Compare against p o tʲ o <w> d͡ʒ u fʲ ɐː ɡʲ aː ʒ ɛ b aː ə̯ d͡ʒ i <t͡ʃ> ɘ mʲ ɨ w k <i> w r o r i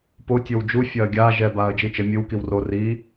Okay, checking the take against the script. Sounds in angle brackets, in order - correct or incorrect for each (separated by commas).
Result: correct, correct, correct